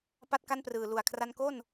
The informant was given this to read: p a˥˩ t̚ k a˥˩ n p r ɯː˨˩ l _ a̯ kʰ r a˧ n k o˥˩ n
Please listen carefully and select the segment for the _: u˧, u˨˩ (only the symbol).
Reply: u˨˩